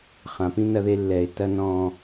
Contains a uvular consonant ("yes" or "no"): yes